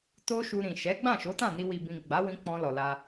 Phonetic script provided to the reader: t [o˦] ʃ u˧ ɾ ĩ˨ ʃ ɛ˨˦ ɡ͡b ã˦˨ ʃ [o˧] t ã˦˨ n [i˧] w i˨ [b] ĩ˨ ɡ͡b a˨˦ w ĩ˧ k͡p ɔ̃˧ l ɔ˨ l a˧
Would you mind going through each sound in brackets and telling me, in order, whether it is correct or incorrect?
correct, incorrect, correct, correct

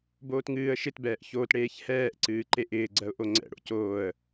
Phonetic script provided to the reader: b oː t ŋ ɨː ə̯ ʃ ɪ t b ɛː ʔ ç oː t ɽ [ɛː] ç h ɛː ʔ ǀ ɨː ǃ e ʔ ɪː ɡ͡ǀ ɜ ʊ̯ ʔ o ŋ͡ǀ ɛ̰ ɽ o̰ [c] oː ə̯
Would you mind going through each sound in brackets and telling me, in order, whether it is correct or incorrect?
incorrect, correct

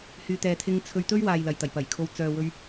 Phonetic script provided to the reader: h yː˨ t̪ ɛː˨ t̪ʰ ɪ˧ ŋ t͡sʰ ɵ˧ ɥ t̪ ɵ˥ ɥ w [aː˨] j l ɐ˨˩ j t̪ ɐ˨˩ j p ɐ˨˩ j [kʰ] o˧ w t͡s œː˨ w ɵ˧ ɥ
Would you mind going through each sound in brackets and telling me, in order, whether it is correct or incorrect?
correct, correct

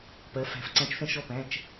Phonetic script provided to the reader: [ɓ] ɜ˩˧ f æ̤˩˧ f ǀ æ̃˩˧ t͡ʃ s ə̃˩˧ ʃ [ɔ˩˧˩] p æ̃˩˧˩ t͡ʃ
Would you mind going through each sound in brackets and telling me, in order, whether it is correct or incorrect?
incorrect, correct

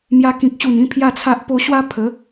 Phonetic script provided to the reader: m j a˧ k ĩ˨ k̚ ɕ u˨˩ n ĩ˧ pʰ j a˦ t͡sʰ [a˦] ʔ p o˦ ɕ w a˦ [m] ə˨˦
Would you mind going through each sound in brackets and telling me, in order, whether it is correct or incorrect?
correct, incorrect

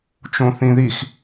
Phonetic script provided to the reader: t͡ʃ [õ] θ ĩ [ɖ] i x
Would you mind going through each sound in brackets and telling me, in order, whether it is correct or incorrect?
correct, incorrect

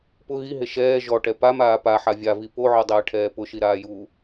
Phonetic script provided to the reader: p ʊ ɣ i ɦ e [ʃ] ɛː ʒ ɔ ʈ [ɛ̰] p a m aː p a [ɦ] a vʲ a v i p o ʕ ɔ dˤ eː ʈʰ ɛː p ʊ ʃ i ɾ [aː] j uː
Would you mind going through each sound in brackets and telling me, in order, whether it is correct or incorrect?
correct, incorrect, incorrect, correct

